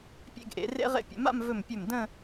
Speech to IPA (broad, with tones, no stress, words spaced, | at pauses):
pʲḛ˥˧ɡʔḛ˩˧rḛ˥ ʁḛ˧pʲə̰˩˧ma̰˥˧m vɵ˧˩mpʲɵ˧˩m də̃˥˧